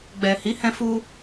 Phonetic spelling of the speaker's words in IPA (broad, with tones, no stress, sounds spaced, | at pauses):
ɡ͡b ɛ˨ h i˨˦ h ɛ̃˧ f u˧